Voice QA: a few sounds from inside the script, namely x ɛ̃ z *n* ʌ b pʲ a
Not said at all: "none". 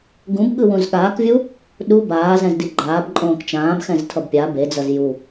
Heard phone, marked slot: tʰ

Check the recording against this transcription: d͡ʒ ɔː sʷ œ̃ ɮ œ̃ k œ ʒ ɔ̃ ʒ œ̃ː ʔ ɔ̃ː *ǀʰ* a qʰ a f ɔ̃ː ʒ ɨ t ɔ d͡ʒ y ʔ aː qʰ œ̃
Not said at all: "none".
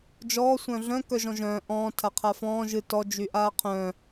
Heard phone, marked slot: tʰ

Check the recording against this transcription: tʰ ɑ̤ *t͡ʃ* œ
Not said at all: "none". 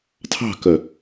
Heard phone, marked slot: k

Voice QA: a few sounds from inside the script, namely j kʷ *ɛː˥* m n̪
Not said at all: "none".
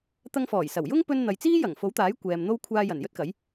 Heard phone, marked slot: ɛː˨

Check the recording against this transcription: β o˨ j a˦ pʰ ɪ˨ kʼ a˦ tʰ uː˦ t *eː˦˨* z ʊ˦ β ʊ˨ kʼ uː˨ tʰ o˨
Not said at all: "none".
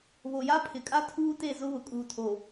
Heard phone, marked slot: e˦˨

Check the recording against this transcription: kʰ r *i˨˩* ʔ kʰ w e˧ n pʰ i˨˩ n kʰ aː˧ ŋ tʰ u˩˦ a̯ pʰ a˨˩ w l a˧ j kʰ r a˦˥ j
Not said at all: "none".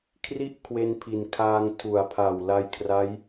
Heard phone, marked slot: i˥˩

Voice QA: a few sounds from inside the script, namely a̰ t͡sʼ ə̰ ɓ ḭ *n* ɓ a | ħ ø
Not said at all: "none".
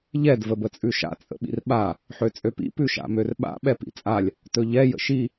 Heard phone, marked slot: r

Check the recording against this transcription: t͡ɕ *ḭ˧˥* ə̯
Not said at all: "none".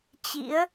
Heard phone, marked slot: ḭ˧˥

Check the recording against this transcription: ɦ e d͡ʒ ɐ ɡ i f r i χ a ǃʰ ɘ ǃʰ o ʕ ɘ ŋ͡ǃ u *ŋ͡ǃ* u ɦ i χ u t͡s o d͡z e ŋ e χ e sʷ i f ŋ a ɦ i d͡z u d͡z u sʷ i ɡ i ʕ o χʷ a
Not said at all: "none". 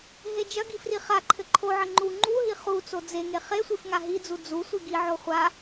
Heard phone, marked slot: ŋ͡ǃ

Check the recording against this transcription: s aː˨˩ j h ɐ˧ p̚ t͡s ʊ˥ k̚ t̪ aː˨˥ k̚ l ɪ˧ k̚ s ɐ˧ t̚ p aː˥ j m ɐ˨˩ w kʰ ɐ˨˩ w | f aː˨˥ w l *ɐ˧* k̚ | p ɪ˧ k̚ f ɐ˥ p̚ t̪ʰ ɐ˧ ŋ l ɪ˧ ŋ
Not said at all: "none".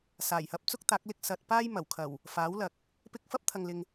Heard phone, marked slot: ɐ˨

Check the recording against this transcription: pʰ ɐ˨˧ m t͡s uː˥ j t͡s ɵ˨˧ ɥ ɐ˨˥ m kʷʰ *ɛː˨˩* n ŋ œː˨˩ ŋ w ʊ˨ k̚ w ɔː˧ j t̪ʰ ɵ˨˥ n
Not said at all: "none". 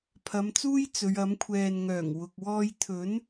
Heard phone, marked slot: ɛː˨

